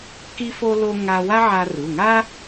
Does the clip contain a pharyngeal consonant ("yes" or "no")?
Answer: yes